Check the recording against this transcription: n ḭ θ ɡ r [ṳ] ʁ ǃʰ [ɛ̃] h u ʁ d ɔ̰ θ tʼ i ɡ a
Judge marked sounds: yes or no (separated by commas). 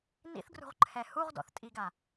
yes, no